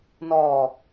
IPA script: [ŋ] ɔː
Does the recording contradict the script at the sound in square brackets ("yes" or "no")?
yes